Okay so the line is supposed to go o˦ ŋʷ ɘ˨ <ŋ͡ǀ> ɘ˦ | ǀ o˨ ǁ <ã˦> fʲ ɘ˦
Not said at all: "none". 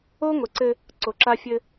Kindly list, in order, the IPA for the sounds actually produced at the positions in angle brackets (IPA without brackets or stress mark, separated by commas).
ǀ, a˦